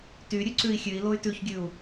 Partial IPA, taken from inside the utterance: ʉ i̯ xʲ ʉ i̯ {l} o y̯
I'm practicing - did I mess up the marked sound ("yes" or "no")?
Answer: no